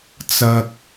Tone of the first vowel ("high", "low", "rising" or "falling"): low